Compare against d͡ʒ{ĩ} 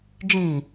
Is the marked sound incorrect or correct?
correct